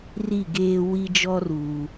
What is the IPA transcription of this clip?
r i˦˨ ɡ eː˦ w i˦ d͡ʒ ɔ˦ r uː˨

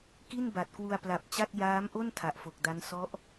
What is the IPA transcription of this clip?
k i˥˩ n b a˨˩ t̚ k w u˧ a̯ p l a˨˩ p̚ t͡ɕ a˥˩ t̚ j aː˦˥ m ʔ o˥˩ n tʰ a˨˩ ʔ f o˨˩ k̚ d a˦˥ n s ɔ˦˥ ʔ

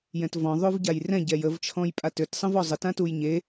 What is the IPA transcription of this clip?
j ɛ̃ t v ɔ̃ ðˤ o v ɟ a j r ɛ̃ ɟ ɛ j ə v t͡ʃʰ ɔ̃ j pʼ a t ø t sˤ ə̃ v ɔ zˤ ə t ã t u j ɲ e

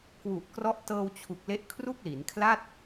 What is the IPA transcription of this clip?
k w u˨˩ ʔ k r ɔ˦˥ ʔ t ɤː˧ w t͡ɕʰ u˨˩ k̚ l e˦˥ ʔ kʰ r u˥˩ k̚ l i˩˦ n kʰ l a˥˩ t̚

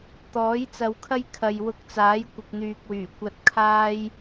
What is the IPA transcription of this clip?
t̪ ɔː˨˥ j t͡s ɐ˧ w kʰ ɐ˥ j kʰ ɐ˨ j w ʊ˧ k̚ t͡s aː˨˥ j kʷ ɪ˨ k̚ n̪ yː˨ k̚ w yː˨˩ kʷ ɐ˧ t̚ kʰ aː˥ j

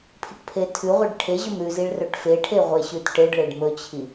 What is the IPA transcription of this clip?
pʰ i ʈ pʰ e tʰ ʉ ʁʷ i ɖ ʈʰ e ʑ ɵ m ɾ ʉ z i ɭ r ɵ ʈ f e ʈʰ e ʁʷ e ɕ ʉ t ʈ e ɖ ɭ e ɖ m ɵ t͡ɕʰ i

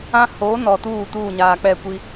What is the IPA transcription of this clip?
ã˦ h oː˨˦ n ɔ˨ t uː˦˨ t uː˦˨ ɲ aː˨ k͡p ɛ˦˨ kʷ i˦

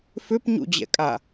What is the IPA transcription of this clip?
f ʏ p ɲ ṵ d͡ʑ ɛ̰ kʼ a

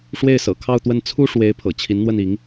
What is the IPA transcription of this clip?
ʂ w e˥˩ ɪ̯ s ɤ̰˨˩ kʰ ɑ˥˧ ʊ̯ t̪ w ə˥˩ n t͡sʰ u˥ ʂ w e˧˥ ɪ̯ pʰ ɤ̰˨˩ t͡ɕʰ i˧˥ n n̪ w ə˥˩ n i˧˥ ŋ

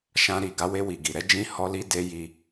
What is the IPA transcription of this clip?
ʃ ã˧ ɾ i˨ ɡ a˨˦ w e˧ w i˨ ɡ i˨ ɾ ɛ˨˦ d͡ʒ ĩ˧ h ɔ˧ l i˧ d e˧ j i˧

